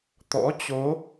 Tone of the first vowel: rising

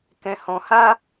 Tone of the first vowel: low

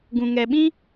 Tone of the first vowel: low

